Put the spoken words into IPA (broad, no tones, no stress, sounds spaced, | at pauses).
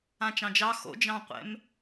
ã t͡ʃ ɑ̃ d͡ʒ ɑ x o̰ d͡ʒ ɑ̃ qʷ ɛ̰ m